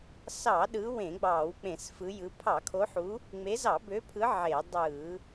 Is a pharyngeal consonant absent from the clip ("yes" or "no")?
no